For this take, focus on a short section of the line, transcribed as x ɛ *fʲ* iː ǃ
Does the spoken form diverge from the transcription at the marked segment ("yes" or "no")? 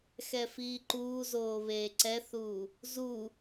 yes